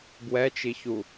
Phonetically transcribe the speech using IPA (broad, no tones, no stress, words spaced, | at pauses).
bwɛt͡ʃiçu